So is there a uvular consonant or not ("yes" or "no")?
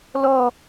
no